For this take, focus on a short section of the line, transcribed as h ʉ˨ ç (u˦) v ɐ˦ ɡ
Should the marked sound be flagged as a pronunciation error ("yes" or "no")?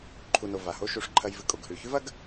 yes